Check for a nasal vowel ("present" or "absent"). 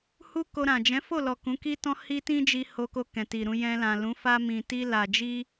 present